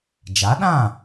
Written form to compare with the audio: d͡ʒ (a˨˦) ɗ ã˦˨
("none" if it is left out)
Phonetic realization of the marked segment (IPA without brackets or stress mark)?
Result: a˨˦